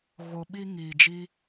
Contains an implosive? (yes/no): yes